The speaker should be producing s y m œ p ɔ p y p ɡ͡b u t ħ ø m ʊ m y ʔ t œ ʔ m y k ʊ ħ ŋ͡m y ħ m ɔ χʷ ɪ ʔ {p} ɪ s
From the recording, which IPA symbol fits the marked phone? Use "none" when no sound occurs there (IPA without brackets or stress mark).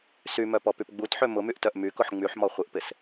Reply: p